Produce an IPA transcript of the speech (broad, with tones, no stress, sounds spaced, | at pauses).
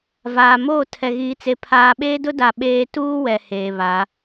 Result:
v aː˨ m oː˦˨ tʰ ɛ˨ ɣ iː˨ t͡s e˨ pʰ aː˨ ɓ eː˦ d ʊ˦ d a˨ ɓ eː˦ t uː˦ w ɛ˨ h eː˨ β a˨˦